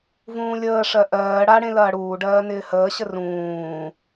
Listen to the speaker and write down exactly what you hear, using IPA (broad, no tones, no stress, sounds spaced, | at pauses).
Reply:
v ũː lʲ əː ʂ ɜ ʔ ɜː ɽ a ɽ ẽ l ɐː ɽ uː ɖ ɜː n ɪː h əː ɕ ə r ũː